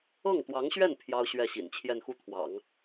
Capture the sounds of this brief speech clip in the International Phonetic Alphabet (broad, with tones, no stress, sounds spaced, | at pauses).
ɤ˥˩ ŋ t̪ w ɑ˧˥ ŋ ɕ ɥ ɛ˥˩ n pʰ j ɑ˥ ʊ̯ ɕ ɥ ɛ˥˩ ɕ ḭ˨˩ n t͡ɕʰ j ɛ˥˧ n x u˥˩ t̪ʰ w ɑ̰˨˩˦ ŋ